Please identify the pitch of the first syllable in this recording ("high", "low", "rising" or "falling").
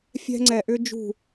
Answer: high